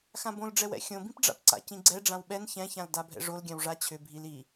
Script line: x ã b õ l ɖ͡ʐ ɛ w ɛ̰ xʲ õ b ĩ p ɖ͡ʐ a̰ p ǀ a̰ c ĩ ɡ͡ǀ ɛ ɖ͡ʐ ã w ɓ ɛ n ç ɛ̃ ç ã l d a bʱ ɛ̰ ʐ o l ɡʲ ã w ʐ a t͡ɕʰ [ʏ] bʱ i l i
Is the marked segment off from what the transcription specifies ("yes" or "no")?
no